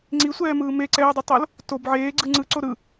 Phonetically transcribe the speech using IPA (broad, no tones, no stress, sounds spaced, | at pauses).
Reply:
ŋ͡ǀ i sʷ ɛː m ɯː m e ǀ ɛː dˤ i tˤ o l | t o b ʕ eː ɡ͡ǀ ɯ ŋ͡ǀ ɯ ǀ o ɾ ɯ